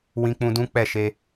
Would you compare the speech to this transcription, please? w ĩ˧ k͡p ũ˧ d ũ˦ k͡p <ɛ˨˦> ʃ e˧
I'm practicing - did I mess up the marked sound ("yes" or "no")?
yes